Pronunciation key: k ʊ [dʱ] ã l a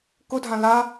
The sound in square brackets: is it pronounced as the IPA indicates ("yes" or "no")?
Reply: yes